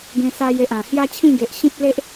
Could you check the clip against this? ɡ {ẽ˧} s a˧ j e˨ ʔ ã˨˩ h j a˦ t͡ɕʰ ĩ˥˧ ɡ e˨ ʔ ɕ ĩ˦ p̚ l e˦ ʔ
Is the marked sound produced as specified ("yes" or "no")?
yes